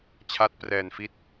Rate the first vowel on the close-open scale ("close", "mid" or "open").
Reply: open